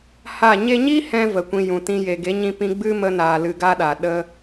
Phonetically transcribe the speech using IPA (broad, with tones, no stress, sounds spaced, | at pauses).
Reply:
h a˦˨ ɲ e˧ ɲ i˦ h ɛ̃˦ v ə˨ kʷ ĩ˧ j ũ˨ t ĩ˧ j e˨ ɡ e˨˦ ɲ ĩ˧ p ĩ˧ ɡ͡b ɨ˧ m ə˧ n aː˨ l ɨ˧ ɡ a˦ ɗ a˨ ɗ ə˧